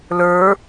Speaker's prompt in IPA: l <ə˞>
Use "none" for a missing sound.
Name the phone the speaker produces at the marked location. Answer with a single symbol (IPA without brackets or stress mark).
ə˞